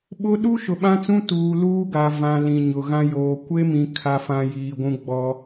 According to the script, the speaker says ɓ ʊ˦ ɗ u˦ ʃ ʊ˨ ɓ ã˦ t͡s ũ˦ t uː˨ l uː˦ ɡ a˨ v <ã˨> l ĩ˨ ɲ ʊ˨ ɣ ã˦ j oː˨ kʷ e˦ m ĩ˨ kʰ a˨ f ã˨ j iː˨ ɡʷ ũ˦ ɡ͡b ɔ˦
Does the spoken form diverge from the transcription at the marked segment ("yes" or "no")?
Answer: no